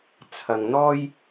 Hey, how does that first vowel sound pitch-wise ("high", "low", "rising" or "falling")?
low